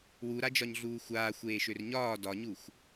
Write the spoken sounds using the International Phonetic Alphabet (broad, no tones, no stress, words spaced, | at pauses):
wuɾad͡ʒɒɲɮuː xʷaːxʷeːʃør ɲɒː dɒɲuxʷ